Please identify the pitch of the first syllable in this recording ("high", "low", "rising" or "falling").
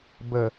low